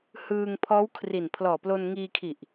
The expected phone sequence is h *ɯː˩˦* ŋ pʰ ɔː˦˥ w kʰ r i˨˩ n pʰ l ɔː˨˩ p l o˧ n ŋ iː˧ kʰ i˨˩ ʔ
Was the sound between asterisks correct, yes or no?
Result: no